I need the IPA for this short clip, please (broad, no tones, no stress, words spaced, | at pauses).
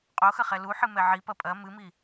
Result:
qʼoxɐχɛ luħɨmɛ ʕipɐ pʼɐ mɨmi